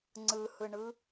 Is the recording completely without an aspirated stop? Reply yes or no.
yes